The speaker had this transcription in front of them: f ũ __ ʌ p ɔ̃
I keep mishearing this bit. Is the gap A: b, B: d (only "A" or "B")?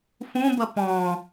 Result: A